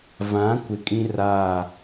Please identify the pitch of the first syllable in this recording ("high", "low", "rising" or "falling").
rising